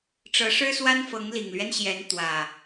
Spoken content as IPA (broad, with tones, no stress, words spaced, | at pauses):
ʈ͡ʂɤ˨˦ʂɻ̩˦swa˦nfɤ˨˦ŋ li˨˩ŋlɥɛ˦n ɕjɛ˨˦n t̪wä˨˩